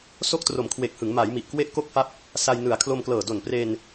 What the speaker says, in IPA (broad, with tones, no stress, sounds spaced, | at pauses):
s o˥˩ k̚ t r o˨˩ m kʰ w e˨˩ k̚ h ɯ˩˦ ŋ m a˩˦ j m i˨˩ ʔ k w e˥˩ ʔ k o˥˩ k̚ f a˥˩ p̚ | s a˧ j n ɯ˨˩ a̯ kʰ l o˧ m k l ɤː˨˩ d o˨˩ n p r e˧ n